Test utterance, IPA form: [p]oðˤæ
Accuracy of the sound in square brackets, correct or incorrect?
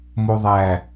incorrect